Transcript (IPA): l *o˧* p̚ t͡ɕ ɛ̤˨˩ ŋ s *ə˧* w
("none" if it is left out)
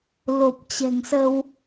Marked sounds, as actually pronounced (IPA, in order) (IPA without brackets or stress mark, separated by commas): o˨˩, ə˧